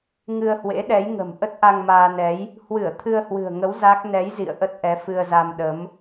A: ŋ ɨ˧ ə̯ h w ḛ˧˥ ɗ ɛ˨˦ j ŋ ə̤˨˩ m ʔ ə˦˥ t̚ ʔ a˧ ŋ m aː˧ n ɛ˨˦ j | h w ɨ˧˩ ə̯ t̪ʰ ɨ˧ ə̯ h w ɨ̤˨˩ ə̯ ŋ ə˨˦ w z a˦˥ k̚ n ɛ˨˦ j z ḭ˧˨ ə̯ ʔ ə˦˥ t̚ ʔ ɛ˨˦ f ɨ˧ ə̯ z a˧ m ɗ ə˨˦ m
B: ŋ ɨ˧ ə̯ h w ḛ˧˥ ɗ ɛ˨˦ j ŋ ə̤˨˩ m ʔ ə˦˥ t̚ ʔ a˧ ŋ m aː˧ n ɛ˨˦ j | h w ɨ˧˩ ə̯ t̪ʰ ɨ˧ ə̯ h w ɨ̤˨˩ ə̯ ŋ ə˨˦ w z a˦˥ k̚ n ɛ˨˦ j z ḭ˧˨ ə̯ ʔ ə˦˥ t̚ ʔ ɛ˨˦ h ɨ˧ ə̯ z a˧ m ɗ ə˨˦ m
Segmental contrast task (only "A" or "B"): A